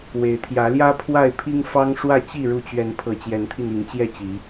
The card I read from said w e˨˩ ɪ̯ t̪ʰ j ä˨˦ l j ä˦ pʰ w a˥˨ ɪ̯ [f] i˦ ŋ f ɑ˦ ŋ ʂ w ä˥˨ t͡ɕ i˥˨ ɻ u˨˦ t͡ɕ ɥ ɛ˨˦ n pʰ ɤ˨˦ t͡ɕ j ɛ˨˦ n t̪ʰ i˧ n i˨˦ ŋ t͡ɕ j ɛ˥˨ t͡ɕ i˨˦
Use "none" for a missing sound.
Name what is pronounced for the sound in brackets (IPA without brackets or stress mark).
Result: pʰ